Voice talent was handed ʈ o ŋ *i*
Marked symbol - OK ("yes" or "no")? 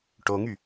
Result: no